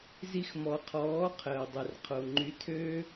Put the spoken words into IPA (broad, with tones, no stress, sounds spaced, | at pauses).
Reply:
z i˧ x m ɔ˨ qʰ ɔː˨˦ qʰ əː˨ dˤ e˨ r qʰ o˨ ŋ͡ǃ y˧ tʰ ø˦